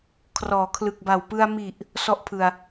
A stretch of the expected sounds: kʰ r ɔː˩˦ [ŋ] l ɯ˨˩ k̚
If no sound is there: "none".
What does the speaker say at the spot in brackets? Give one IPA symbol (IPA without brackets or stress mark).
kʰ